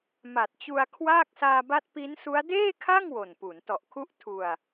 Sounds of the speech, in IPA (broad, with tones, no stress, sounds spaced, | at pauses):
m a˨˩ t̚ t͡ɕ u˧ a̯ kʰ w aː˥˩ k̚ s aː˧ b a˦˥ t̚ p i˦˥ n s u˦˥ a̯ d eː˥˩ kʰ a˥˩ ŋ w o˨˩ n p u˩˦ n t ɔ˨˩ ʔ kʰ u˦˥ ʔ tʰ u˧ a̯